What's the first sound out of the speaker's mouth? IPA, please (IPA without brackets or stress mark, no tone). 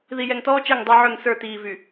ð